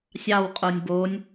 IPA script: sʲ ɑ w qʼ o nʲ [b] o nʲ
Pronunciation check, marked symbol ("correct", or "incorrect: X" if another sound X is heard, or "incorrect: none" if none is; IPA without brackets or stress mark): correct